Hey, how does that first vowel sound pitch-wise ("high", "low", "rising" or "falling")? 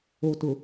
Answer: low